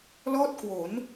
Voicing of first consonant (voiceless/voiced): voiced